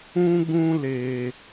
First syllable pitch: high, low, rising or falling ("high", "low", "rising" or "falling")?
high